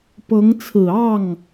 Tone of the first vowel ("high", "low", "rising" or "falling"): rising